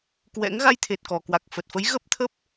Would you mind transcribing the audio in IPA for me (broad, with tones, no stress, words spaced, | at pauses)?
kwɛ̰˧˥ŋ ɣa˧jt̪ʰe˨˩t̚kɔ˨˩ kwa˨˩k̚fə˨˩t̚fə˨˦j ɣə˦˥p̚t̪ʰə˦˥p̚